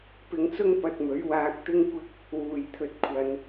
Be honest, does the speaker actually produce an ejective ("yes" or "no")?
no